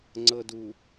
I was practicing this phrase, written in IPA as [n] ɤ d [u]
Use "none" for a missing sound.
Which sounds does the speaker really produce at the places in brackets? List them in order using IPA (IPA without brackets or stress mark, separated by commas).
ŋ͡ǀ, u